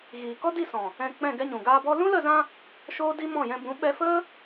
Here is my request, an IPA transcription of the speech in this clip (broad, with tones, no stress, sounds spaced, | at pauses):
ɣ iː˨ k ɔ˦ d i˦˨ s ɔ̃˨ | ɛ̃˧ k͡p ɛ̃˦˨ ɡ ɛ˧ ɲ ũ˨ ɡ aː˧ b ɔ˦ l ũ˦ l ə˦˨ z ã˧ | ʃ oː˦ d i˦ m ɔ̃˦˨ j ɛ̃˧ b ũ˨˦ ɓ ɛ˧ f ə˦